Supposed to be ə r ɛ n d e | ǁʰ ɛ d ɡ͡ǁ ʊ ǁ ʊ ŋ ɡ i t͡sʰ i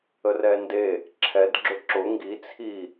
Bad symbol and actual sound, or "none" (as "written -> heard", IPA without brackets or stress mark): none